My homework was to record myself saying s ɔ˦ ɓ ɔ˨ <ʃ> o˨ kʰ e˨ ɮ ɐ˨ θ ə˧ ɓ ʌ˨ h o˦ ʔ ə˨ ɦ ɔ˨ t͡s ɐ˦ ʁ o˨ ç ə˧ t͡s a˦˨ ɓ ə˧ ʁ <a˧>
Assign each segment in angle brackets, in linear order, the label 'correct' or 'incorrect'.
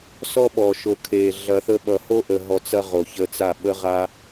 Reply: correct, correct

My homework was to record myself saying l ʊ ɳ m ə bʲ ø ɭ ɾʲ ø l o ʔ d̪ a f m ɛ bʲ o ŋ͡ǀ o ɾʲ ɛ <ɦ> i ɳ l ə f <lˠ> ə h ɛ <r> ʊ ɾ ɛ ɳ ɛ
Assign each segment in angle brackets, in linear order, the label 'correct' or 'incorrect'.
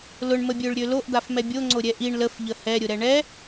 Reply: incorrect, incorrect, incorrect

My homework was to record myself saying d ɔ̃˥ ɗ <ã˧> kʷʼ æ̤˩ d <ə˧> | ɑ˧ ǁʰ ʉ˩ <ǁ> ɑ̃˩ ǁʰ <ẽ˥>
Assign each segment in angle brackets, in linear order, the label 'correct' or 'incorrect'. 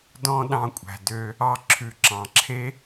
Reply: incorrect, incorrect, correct, incorrect

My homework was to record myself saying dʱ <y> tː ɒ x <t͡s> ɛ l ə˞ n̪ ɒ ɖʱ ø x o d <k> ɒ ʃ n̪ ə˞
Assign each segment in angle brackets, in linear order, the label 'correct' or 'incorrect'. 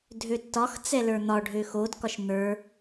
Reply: incorrect, correct, correct

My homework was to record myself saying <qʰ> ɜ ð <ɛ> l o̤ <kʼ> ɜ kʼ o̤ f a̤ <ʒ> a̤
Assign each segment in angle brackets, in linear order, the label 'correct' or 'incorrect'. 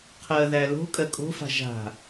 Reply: correct, incorrect, correct, correct

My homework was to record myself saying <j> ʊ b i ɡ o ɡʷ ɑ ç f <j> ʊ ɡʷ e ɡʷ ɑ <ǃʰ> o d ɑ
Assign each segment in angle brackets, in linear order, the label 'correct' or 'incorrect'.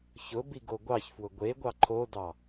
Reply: incorrect, incorrect, correct

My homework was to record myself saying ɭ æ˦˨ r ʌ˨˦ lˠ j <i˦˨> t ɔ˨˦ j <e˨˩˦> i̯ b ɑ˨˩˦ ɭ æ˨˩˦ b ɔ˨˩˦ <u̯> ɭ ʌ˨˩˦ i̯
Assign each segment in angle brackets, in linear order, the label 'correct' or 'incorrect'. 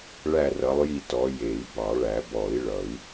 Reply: correct, correct, incorrect

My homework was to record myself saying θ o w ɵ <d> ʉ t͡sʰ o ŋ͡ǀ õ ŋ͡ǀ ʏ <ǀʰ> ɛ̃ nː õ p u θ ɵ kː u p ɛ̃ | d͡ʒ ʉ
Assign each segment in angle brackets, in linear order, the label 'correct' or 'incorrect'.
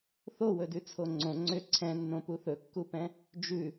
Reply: correct, correct

